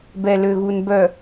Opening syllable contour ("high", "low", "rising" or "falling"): low